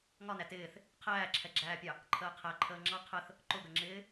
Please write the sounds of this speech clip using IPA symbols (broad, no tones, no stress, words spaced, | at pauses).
ŋɒnæ tɪːθ | qʰæːǁʰɛɡ͡ǁæːpʲɑ | ǃʰəːqʰæ ǃʰəːŋ͡ǁɑ qʰəθ | ǃʊɡəŋ͡ǁɪː